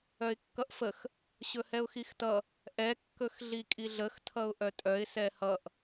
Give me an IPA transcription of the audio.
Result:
œ ɪ̯ kː ʌ ʔ f ə x | ɕ ɵ h ɛ ʊ̯ x i x t ʌ | ʔ ɛ kː ɵ x ɮ i kʼ i ɮ ə x tʰ ʌ ʊ̯ ʔ œ tʼ œ ɪ̯ s ɛ h ʌ ʔ

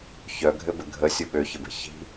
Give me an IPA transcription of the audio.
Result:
ç œ ɡʱ ɘ b ɘ ɡʱ ə sʲ ʊ ɓ ø ç ɘ b e̤ ç i̤

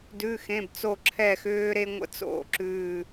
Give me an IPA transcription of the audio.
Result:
d ʉ˩˧˩ x ẽ˩˧˩ b t͡s o˧˩ ǁʰ ɛ˧˩ x ʏː˧ ɾ e˧ ŋʷ ə̰˨˥ t͡s o̰˨˩˦ ǁ ʉː˧˩

